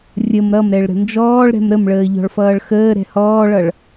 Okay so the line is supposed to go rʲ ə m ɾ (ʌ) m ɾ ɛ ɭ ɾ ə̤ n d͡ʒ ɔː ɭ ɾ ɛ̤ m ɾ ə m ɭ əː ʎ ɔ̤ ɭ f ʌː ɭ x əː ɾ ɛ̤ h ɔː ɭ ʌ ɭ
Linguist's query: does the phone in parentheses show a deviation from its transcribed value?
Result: no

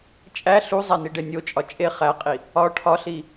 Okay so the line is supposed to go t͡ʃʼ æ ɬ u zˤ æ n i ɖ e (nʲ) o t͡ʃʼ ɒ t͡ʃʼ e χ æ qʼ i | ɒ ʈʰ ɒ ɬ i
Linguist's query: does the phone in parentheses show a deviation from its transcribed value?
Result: no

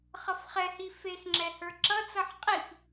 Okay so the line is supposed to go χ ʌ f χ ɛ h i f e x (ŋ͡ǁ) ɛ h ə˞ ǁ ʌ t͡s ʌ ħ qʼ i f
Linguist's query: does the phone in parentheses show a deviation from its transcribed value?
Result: no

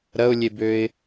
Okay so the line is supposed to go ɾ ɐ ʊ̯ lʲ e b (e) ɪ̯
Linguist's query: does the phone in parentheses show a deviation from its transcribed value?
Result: yes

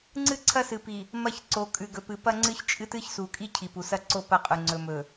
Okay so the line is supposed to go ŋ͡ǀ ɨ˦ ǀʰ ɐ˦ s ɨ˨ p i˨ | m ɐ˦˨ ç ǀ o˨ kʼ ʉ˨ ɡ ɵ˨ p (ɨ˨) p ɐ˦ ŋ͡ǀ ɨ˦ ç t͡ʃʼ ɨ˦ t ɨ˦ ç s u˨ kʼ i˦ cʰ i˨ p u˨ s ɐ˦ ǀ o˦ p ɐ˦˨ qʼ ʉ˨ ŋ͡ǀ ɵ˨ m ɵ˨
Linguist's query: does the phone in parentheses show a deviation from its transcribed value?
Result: no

